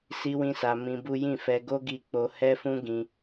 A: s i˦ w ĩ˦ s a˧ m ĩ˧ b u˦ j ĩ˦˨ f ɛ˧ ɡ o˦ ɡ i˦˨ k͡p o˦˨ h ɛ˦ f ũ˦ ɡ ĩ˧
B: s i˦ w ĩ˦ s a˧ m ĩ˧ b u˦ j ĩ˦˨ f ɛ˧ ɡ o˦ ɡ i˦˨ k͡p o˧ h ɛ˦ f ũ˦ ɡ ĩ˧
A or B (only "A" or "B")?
B